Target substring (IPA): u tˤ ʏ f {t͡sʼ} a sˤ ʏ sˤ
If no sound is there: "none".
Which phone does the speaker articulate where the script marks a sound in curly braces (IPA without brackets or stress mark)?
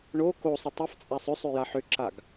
t͡sʼ